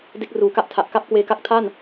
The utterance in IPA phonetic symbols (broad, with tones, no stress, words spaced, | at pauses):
de˦˥k̚ruː˩˦ka˦˥ʔtʰa˨˩ʔ ka˥˩p̚kweː˧ka˦˥k̚tʰa˥˩n